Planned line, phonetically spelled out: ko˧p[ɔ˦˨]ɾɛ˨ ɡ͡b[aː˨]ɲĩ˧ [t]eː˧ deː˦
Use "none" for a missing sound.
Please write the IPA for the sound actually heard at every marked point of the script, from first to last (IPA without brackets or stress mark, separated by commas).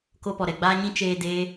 ɔ˨, aː˧, t͡ʃ